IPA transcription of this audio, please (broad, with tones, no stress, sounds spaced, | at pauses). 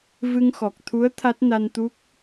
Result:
v ɨ˧ ŋ x ɔ˨˩ k̚ t̪ʰ u˧˥ ə̯ t̪ʰ a˦˥ t̚ n a˧ n t̪ u˦˥ k̚